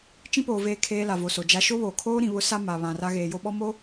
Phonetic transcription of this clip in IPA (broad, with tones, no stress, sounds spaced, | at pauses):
t͡ʃ ĩ˦ p oː˨ v eː˦ kʰ eː˦ l a˨ v o˨ s o˨ d͡ʒ a˦ ʃ o˦ β oː˨ kʰ oː˦ ɾ ĩ˨ β ʊ˦ s a˦ m a˨ β ã˨ r a˦ ɣ eː˨ j o˦ ɓ ɔ˦ m o˦